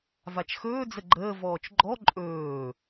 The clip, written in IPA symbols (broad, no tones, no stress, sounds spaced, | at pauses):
v a t͡ʃ x ɵː d͡z ə ɡ͡ǃ əː v ɔː t͡ʃ ɡ͡ǃ ɔ ǃʼ ɵː